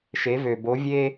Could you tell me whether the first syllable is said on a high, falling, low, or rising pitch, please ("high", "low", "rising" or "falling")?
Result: rising